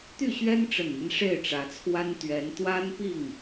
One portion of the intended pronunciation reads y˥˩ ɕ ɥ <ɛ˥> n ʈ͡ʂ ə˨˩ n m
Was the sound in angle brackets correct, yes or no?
yes